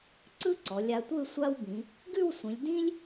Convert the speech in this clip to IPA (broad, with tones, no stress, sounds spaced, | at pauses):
ǀ ɯ˥ ǀ ɔ˩˧ lʲ a˧ tʷ ɯ˥˧ y̯ sʷ a˥ w b ĩ˩˧ | ɡ ʉ˥˧ w sʷ ĩ˩˧ lʲ d ĩ˥ lʲ